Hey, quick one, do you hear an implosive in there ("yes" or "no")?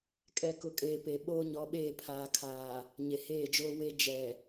yes